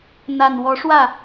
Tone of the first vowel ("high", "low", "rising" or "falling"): low